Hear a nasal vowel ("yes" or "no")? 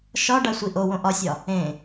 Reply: yes